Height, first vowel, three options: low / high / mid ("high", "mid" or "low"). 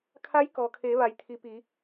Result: low